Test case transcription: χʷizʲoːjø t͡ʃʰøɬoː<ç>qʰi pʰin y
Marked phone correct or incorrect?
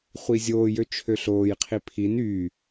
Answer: incorrect